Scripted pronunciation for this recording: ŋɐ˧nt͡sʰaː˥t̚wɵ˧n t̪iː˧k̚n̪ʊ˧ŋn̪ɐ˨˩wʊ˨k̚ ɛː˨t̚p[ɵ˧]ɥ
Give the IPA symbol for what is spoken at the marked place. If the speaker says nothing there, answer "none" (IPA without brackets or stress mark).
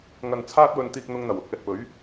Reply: ɵ˨˥